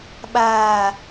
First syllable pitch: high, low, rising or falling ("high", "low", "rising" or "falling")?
low